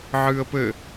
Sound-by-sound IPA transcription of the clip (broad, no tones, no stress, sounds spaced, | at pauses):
ʕ ɨː ə̯ p ɘ